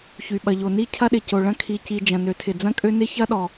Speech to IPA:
ç y˩ ɓ ɐ˩ ʎ o˩ n i˥ cʰ ɐ˥ ɗ ɪ˩ c o˩ ɭ ɐ̃˥ kʰ i˩ c i˩ d͡ʒ ɐ̃˩ n ø˩ tʰ ɪ˩ d͡z ɐ̃˥ kʼ ø˥ n ɪ˥ ç ɐ˥ ɗ ɔ˩

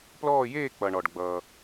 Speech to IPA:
p l ɔː˦˨ j eː˦˨ k͡p ʌ˩ ɳ ɔ˩ ɖ ɡ͡b ʌː˩

